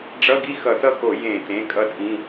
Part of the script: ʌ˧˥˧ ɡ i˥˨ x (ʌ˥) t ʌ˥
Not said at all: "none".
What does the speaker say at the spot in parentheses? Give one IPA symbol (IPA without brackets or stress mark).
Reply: ʌ˧˩˧